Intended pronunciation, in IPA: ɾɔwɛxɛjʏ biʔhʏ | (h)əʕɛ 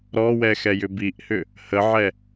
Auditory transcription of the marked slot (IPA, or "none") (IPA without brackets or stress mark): h